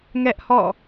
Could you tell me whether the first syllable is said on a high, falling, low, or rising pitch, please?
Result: high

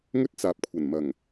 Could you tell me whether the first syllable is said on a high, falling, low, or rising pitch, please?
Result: high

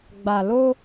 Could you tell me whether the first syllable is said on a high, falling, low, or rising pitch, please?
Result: low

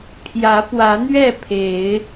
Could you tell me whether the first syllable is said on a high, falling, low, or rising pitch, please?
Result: rising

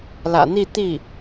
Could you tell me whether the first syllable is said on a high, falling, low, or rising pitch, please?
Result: low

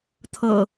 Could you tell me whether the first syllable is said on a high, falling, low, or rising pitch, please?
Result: low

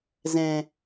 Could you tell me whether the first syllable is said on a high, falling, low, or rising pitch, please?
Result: low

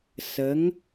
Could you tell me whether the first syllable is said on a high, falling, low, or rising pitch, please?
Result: rising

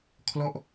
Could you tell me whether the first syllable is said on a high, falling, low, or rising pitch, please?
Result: falling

